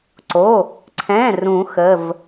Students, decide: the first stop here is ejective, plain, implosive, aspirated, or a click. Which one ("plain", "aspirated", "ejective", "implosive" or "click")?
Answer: click